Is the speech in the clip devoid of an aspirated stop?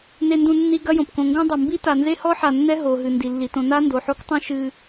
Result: yes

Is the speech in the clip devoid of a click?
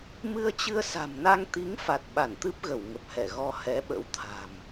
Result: yes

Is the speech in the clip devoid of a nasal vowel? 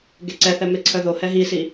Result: yes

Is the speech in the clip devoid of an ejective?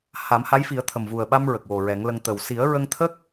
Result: yes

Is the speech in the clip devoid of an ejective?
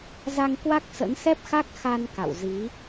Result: yes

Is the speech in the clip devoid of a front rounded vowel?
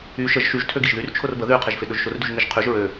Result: no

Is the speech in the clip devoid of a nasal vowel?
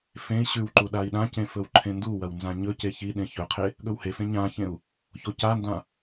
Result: no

